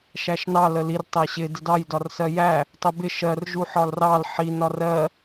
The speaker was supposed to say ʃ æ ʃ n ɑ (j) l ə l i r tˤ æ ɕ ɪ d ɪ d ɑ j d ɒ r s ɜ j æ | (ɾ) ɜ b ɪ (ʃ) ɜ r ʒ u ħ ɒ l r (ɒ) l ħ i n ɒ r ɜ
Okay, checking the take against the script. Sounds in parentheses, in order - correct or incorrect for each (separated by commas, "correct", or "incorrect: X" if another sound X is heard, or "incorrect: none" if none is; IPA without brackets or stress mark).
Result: incorrect: none, incorrect: tˤ, correct, incorrect: ɑ